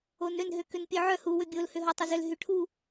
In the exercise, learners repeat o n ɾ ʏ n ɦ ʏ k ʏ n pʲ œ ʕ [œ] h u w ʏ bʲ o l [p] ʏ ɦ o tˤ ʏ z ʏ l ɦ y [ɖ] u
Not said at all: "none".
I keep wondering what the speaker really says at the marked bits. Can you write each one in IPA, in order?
œ, h, ʈʰ

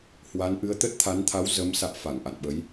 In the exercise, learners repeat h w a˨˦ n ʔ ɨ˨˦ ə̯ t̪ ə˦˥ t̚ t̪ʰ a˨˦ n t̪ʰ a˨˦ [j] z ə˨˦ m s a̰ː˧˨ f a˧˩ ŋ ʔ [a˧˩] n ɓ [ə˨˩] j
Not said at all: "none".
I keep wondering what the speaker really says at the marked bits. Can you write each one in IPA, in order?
w, a̰˧˨, ə˨˦

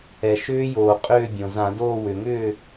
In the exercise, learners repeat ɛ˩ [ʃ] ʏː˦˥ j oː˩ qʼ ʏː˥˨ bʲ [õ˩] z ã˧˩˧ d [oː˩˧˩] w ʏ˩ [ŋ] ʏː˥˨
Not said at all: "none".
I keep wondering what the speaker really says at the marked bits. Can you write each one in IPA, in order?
ʃ, õ˩, oː˥˨, ŋ

